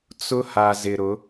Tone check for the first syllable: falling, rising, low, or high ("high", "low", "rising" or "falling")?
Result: high